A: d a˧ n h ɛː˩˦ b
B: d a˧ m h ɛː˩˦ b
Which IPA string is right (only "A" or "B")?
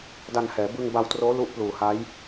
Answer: A